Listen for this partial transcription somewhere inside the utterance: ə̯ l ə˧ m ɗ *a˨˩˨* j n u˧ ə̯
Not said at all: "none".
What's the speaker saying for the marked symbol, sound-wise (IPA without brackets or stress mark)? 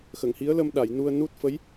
a˨˩˨